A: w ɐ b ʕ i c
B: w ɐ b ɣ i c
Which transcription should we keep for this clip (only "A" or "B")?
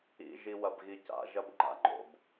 B